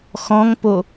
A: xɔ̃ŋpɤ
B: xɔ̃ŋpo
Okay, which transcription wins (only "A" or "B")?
B